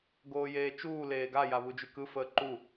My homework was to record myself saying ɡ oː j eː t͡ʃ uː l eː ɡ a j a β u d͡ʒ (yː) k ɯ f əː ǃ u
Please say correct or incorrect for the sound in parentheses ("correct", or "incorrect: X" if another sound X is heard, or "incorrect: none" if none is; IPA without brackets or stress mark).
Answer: incorrect: y